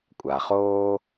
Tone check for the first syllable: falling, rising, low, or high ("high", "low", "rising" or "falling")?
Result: low